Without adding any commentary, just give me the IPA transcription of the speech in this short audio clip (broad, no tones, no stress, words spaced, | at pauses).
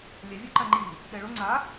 lʲɛvʲuǃa ŋ͡ǃi | ɗɛɭo ŋ͡ǀa